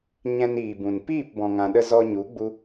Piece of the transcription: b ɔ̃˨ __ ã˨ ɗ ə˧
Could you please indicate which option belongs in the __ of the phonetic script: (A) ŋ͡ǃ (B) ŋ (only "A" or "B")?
B